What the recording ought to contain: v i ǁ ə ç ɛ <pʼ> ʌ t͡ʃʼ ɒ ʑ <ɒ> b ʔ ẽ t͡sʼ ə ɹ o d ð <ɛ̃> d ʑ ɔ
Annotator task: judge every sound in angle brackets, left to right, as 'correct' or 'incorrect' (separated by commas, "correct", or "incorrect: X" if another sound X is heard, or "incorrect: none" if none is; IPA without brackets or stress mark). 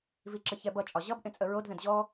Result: incorrect: b, incorrect: ʌ, correct